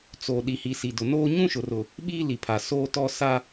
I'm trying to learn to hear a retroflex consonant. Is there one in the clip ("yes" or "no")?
no